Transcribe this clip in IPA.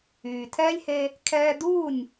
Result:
yː˩tʰɛː˥lʲhe˧ | kʰɛː˧duː˥˩nʲ

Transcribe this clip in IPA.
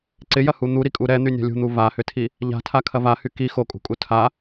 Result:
ǀɪjɐhu n̪uɾikʼu ɾɛn̪ynʲa̤ lʲṳn̪u vahʏtʰi | ʎa̤tʰakʰɐ vahy ki xokʼṳkʼu tʰa

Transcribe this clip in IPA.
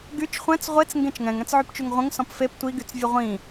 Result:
ɡyt͡ʃ χʷɛ̃t͡s ʁʷet͡s ŋɡẽt͡ʃŋɛ̃ŋ ɛ̃t͡sʕypt͡ʃyŋʁʷə̃ŋ sɔ̃pfep tʷi ɡyt͡svʲəʁʷĩ

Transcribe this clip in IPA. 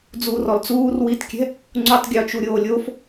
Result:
d͡zuːrɔlt͡suːr witkʲɛ̤ | ŋ͡ǀutˤɡʲɔt͡ʃuɾʲoː lʲof

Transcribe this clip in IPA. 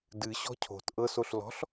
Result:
dɨ ɕɔ̤cʰo̤t ʔɤs oɬlɔ̤ɬ

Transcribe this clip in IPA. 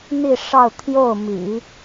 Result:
n̪i˥˧ʂɑ˥˧ʊ̯ t̪ʰjo˥˩ʊ̯ mḭ˨˩˦

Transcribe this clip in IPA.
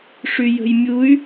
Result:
ʂyjə̤jmʲuy̯

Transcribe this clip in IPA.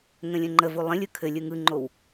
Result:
ŋə̃lʲə̃ŋ͡ǃəvu lˠə̃lʲɯ kʰɘ lʲɯŋɯŋ͡ǃow

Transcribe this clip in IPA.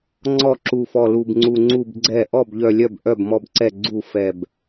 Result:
ŋ͡ǀɔ˥˩ǁu˧˩fɔ˧˩ lu˧˩bŋ͡ǀu˧˩ŋ͡ǀu˥˩b ɡ͡ǀɛ˥˩ ʔɔ˥˩bʎœ˧˩lʲœ˥˩b ʔœ˥˩bmɔ˥˩bǀɛ˥˩ ɡ͡ǀu˥˩fɛ˧˩b

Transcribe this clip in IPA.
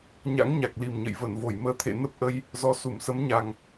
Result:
ɲa̰˧˥ŋɲa˨˩k̚li˨˩mɲə̰˧˨j və˧˩nvo˧˩jməː˨˦t̪ʰḛ˧˨ nə˦˥p̚ʔə˧j | zɔ˨˦ su˧˩msə˨˦mɲa˨˩ŋ

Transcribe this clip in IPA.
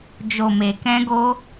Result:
d͡ʒo˨me˨kɛ̃˧ɡo˧

